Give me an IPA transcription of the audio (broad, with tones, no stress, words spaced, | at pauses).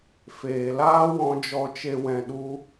feː˨laː˦wɔ̃˧ d͡ʒɔ˨t͡ʃe˨ wɛ̃˨ ɗu˧